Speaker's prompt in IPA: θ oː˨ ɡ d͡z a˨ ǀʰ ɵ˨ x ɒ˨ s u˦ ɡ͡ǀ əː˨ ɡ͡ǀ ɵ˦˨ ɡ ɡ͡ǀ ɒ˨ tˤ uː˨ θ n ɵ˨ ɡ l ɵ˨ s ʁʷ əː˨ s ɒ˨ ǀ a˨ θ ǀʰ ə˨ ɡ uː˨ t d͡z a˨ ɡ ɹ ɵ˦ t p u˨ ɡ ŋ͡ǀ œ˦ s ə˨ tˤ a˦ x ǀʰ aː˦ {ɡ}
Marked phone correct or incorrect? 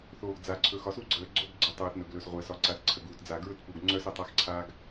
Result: correct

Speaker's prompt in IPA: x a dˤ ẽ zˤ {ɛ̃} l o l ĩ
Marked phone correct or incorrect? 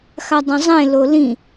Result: incorrect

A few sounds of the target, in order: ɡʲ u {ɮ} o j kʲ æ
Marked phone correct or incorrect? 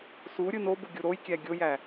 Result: incorrect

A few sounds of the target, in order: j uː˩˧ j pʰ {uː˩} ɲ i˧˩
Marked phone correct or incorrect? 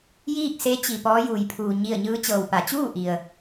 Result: correct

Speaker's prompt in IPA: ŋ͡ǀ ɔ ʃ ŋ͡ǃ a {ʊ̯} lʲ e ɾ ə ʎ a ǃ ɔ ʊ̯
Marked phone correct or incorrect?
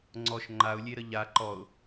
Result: correct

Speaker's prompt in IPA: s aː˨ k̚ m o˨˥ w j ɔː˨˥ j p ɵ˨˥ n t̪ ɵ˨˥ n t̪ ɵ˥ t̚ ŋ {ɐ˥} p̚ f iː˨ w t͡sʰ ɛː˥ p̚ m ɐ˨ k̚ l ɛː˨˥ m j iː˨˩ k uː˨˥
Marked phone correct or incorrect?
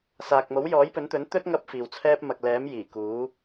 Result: correct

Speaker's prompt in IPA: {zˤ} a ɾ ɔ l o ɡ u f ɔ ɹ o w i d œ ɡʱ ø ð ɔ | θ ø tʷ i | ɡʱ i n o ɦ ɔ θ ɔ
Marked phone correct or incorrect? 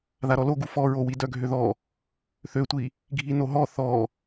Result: incorrect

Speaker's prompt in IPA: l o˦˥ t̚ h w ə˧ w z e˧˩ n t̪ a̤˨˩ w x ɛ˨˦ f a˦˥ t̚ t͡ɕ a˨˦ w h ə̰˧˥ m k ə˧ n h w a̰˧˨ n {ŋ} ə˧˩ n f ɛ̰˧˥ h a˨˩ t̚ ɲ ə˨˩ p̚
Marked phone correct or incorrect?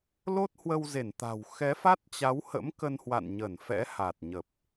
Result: incorrect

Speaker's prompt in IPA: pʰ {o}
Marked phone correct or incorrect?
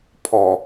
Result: incorrect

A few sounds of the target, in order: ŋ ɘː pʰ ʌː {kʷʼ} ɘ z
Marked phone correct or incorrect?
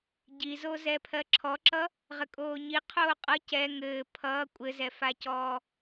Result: correct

